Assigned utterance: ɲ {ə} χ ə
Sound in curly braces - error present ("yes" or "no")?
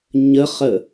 no